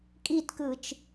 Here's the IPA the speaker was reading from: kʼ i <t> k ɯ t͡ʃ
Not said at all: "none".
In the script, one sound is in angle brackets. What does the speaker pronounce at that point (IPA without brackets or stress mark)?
t